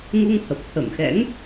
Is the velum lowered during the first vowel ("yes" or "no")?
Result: no